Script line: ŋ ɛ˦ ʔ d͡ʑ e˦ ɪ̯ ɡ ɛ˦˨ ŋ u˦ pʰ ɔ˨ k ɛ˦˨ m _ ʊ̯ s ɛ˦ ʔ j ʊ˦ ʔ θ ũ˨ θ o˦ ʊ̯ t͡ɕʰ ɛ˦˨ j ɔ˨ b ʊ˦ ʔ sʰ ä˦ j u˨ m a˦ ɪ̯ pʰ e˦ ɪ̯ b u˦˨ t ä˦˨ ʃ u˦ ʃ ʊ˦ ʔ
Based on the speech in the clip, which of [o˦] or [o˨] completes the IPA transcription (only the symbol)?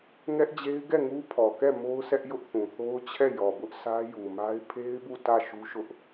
o˦